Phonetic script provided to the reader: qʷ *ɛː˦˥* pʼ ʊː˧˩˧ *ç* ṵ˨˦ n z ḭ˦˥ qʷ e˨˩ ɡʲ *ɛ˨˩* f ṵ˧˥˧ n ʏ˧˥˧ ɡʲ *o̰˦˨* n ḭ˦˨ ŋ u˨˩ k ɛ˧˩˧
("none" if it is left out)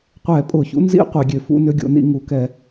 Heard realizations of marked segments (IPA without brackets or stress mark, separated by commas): ɛː˧˩˧, ç, ø˨˩, o̰˦˨